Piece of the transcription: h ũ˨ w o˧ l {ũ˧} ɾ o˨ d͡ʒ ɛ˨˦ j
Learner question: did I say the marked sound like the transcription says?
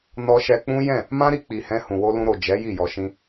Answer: yes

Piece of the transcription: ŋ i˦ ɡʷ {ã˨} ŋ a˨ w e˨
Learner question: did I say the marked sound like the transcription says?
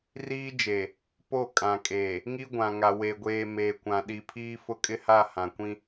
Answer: yes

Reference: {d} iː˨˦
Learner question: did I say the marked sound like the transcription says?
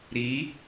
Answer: no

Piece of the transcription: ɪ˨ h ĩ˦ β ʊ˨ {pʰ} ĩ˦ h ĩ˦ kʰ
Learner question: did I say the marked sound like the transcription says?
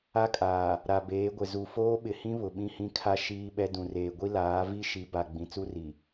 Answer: no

